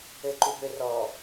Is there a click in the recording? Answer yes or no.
yes